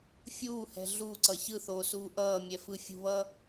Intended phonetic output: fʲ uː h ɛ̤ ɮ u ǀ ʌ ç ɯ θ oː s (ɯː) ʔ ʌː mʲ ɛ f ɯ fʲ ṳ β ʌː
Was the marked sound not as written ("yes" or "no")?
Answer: yes